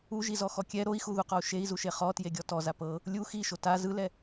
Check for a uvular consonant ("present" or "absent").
present